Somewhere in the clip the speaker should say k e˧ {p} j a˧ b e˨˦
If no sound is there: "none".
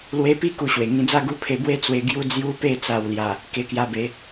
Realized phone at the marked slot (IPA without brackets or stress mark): k